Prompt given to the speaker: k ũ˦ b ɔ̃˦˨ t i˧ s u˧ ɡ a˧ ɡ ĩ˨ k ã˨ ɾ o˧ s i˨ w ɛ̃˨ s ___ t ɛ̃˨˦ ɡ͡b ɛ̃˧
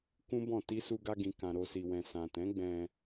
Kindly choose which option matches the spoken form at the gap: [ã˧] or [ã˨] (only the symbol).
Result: ã˨